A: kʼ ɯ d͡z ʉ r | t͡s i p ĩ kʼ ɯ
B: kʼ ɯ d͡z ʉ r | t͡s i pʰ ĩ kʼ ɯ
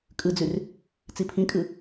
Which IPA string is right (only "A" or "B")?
B